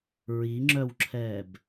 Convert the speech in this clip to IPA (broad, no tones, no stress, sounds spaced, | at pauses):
ɹ i ŋ͡ǁ œ w ǁʰ ɛː b